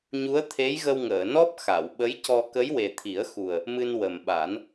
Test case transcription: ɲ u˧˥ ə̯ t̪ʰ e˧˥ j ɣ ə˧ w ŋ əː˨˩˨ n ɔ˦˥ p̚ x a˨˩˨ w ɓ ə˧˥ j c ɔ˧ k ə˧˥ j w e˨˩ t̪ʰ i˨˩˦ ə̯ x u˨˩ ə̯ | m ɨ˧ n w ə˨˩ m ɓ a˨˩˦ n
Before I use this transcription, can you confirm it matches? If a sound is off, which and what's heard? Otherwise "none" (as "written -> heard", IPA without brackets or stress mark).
none